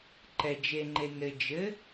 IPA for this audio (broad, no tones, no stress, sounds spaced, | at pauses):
ǃ ɛ d͡ʒ e ŋ͡ǃ e n ɘ d͡ʒ ɘ